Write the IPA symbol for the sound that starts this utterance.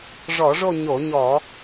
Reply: ʐ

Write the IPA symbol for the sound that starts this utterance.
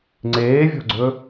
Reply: ŋ͡ǀ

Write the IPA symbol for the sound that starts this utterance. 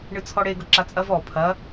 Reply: ɳ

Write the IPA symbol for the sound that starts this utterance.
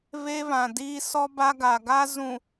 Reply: β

